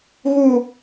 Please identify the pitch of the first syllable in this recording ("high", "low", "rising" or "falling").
low